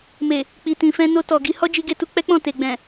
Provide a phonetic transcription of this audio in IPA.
m e˨ | k͡p i˨ t ĩ˨ f ɛ̃˧ n o˧ t ɔ˨ ɡ i˧ h ɔ˦ d͡ʒ i˧ ɡ e˧ t u˧ k͡p ɛ˦ k͡p ɔ̃˦˨ t e˨ ɡ͡b ɛ̃˨

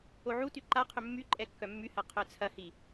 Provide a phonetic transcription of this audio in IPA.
o ʕ u t y ǃ a qʰ ʏ mː y ǃʼ ɛ kː œ mː y h ɐ qʰ œ t͡sʰ ɐ h i

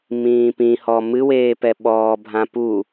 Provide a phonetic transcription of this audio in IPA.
m ĩː p ĩ h ɔ m ɨ w eː p ɛ ɓ ɔː bʱ ã p u

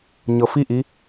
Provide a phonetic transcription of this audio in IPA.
ɲ ɤ f i ʔ i

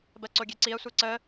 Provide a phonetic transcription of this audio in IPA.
b ɜ ǀ o ɡʲ e ǀ i ɐ̯ sʷ e ǀ ə

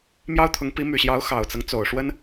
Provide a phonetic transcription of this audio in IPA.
m j ɑ˥ ʊ̯ t̪ʰ ʊ˧˥ ŋ p i˧˥ m y˨˩ ɕ j ɑ˧˥ ʊ̯ x ɑ˨˩ ʊ̯ t͡s ɤ˦ ŋ t͡s o˨˩ ʊ̯ ʂ w ə˥ n

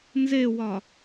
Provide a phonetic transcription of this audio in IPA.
n z e w ɒ

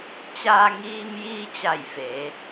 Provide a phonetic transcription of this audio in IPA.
t͡ɕ aː˧ ŋ iː˧ m j iː˧ t͡ɕ a˧˩ j f e˩˧

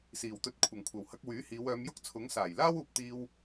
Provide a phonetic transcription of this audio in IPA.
s iː˨˩ w t̪ ɵ˧ t̚ kʷʰ ɐ˨˩ ŋ kʷʰ ɐ˨˩ w h ɐ˧ k̚ w yː˨˥ h iː˨˧ w œː˨˧ m j ʊ˥ k̚ t͡sʰ ʊ˨˥ ŋ s aː˨˩ j l aː˥ w uː˨ p̚ t̪ iː˧ w

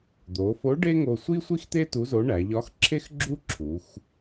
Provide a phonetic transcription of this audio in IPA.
d̪ o˩˧ f o˧˥ ɖ e˥ ŋ o˧ sʷ i˥ sʷ i˥ x t̪ e˥ t u˧˥ z o˧˥ ɳ æ˩˧ ʎ ɒ˧˥ x ǁʰ e˥ x ɡ͡ǁ u˥ ǁʰ u˩˧ x

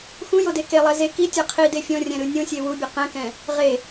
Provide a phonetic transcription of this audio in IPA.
x ũ j o d e k e lˠ ɛ z e k i tʲ ɤ qʰ i d e fʲ ɔ̃ rʲ ɛ̃ ɾ ɯ nʲ õ sʲ e w u bʲ ɛ q ɛ̃ k ɛ̃ | ʁ e

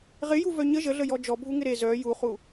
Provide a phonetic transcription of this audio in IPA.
ʁ ɪ j u v œ ɲ ə ʒ ə ɮ ə j ɔ d͡ʒ ɔ bʱ u ŋ ɪ ɾ e z œ j u χ u

